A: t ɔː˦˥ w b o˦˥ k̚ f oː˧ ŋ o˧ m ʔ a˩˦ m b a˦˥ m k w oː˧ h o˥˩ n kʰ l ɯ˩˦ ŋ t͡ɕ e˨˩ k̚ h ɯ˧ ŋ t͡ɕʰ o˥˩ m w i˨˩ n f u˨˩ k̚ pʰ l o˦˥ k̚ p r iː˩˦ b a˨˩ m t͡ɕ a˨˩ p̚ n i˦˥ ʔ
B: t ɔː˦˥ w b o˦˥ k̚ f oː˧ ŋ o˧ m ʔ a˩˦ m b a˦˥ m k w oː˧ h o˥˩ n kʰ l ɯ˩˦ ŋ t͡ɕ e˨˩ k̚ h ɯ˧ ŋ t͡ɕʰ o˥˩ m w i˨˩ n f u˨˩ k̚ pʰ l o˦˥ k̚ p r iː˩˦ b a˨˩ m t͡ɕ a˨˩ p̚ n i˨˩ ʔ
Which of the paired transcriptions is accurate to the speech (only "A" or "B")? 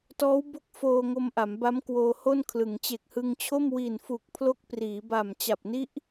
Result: A